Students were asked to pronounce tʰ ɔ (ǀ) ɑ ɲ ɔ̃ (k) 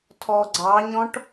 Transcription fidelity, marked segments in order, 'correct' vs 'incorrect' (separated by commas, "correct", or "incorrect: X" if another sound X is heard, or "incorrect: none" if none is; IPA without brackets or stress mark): incorrect: ɡ͡ǀ, incorrect: ʈ